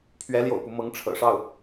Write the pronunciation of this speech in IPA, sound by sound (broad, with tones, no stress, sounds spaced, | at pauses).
pʰ ɥ ɛ˧˥ l j o̰˨˩ ʊ̯ p u˦ m ɤ˧˥ ŋ ʈ͡ʂʰ ɤ̰˨˩ ʂ ɑ˥˩ ʊ̯